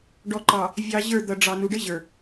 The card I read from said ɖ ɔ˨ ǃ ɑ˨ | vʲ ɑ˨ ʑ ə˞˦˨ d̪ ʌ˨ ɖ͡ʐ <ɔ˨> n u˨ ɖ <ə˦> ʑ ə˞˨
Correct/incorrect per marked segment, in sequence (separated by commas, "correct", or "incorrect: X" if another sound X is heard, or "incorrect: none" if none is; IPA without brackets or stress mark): incorrect: ɑ˨, correct